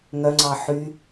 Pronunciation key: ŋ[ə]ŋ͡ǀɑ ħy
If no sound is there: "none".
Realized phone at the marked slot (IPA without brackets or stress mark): œ